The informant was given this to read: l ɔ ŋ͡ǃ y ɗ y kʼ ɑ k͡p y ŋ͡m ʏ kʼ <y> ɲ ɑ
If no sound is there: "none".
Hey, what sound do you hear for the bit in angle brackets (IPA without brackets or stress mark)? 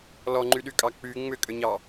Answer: ʏ